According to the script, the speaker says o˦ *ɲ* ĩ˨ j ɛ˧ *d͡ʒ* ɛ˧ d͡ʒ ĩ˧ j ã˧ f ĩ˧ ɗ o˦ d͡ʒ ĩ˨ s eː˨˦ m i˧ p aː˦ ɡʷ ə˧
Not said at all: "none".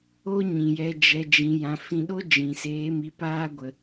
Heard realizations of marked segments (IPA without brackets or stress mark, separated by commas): ɲ, d͡ʒ